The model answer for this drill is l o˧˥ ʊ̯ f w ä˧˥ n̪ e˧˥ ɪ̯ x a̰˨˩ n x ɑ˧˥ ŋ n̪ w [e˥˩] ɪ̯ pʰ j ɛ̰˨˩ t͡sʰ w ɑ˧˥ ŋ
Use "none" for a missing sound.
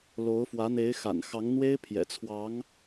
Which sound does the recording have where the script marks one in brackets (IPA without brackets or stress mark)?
e˥